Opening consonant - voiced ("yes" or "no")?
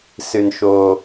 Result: no